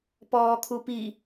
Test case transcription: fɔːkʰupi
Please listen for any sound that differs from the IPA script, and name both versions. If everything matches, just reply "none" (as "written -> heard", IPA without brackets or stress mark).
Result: f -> p